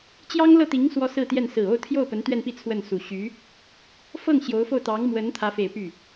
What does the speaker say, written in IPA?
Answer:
t͡ɕ j ɑ˥ ŋ l ɤ˥˩ t̪ i˧˥ ŋ s w ɔ˥ s ɹ̩˥˧ t̪ j ɛ˥˩ n s ɹ̩˨˩ o˥˧ ʊ̯ t̪ʰ j o˥˩ ʊ̯ p ə˧˥ n t̪ ɥ ɛ˥˧ n p i˥˧ t͡sʰ w ə˥˩ n s u˨˩ ɕ y˧˥ | f ɤ˥˩ ŋ ɕ j o˧˥ ʊ̯ f o˥˩ ʊ̯ t̪ ɑ˧˥ ŋ m w ə˧˥ n t̪ʰ ä˧˥ f e˨˩ ɪ̯ p y˥˩

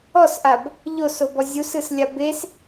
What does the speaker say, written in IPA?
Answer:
ɔ s ʔ a b | ʎ o s o b ɔ zʲ u s ɯ s lʲ a b e s

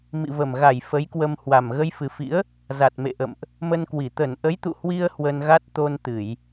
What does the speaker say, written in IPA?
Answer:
m ḭ˧˨ v ə˨˩ m ɣ a˧˩ j f ə˨˦ j k w ə˧ m h w a˨˩ m ɣ ə˧ j f ɨ˨˩ f ḭ˧˥ ə̯ | z a˨˩ t̚ m ḛ˧˨ ʔ ə̰˧˨ m ʔ | m ə˧ n k w i˧˩ t̪ ə˧˩ n ʔ ə˨˦ j t̪ ṵ˧˨ h w i˧ ə̯ h w ə˧ n ɣ a˦˥ t̚ t̪ o˧ n t̪ ɨ˧˩˨ j

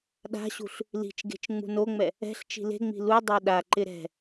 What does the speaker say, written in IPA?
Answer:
ɗ a̤ ɕ ṳ ɬ | l i̤ t͡ʃ ɡ e̤ t͡ʃ ŋ͡m ṳ n o ŋ͡m ɛ | ɛ̤ ɬ t͡ʃ i̤ l e̤ ŋ͡m i̤ l u dˤ e ɗ a ǃ ɪ ɾ ɛ̤

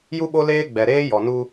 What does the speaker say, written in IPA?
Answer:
j u˦ ɓ o˦ l eː˦ ɡ͡b ɛ˨ ɾ eː˦ j ɔ˨ n u˦

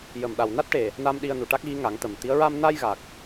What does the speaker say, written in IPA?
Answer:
j ə˨˩ m ɗ a˨˩ w n a˦˥ t̚ ʈ e˨˩ | n a˧ m ɗ i˧ ə̯ n u˨˩ ʈ a˦˥ k̚ ɣ i˧˥ ŋ a˨˩˦ ŋ t̪ ə˨˩ m t̪ i˧˥ ə̯ ɹ a˧ m n aː˧ j ɣ a˨˩ k̚

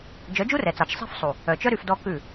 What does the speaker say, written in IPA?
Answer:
d͡ʒ œ˨˦ d͡ʒ u˦ r ɛ˨ t͡s ɑ˨ t͡ʃ sˤ i̤˦ f sˤ u˨ | œ˨ t͡ʃ œ˦ ɾ y˧ f d ɔ˦ k ʉ˦˨

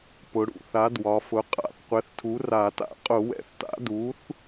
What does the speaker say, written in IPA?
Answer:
p ʊ˩˧ ɽ ṵ˧˩˧ θ a˩˥ d w ɒ˩˧ f ʊ˩˥ qʼ a̰˧˩˧ θ qʷ ɛ˩˥ θ tʰ u˩˥ r a˧˩˧ t a̰˧˩˧ qʼ ʊ˧˩˧ w ɛ̰˩˥ θ t a̰˩˥ d u˩˥ θ

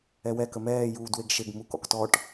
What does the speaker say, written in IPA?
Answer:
ɛ w ɛ k ə m ɛː j uː d w e ɡ ʃ e ɡ m u k ɔ̰ k t ɔ ʈ

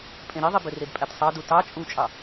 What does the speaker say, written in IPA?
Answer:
pʼ ẽ ɾ i ðˤ i b ø r e d pʼ æ t sˤ ɑ d u t ɑ t͡ʃʼ u t͡ʃʼ ɑ

